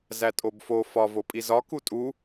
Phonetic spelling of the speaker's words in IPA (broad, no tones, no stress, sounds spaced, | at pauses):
z æ tʼ o b f o f ɒ v o pʼ i z ɒ k u tʼ u